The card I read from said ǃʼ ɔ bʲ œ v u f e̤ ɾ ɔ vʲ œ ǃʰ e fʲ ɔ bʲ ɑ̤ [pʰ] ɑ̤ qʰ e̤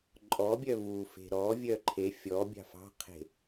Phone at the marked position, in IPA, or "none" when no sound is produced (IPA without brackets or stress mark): f